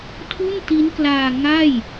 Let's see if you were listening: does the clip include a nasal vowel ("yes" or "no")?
no